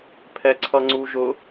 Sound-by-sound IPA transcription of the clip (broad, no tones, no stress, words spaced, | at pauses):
pʰɛǀʰʌŋ͡ǀuʒʊ